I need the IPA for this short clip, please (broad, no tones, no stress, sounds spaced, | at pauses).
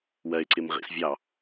w ɜ ɪ̯ ǀ ɪ m ʁ ḭ s vʲ ɑ